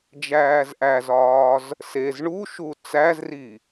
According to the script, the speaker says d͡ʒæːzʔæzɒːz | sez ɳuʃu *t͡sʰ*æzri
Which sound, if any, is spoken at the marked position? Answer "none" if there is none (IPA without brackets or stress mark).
t͡s